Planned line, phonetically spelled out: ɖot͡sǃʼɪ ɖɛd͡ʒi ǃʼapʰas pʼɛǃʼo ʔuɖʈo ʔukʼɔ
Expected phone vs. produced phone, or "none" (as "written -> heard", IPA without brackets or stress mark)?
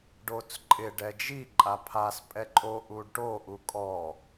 none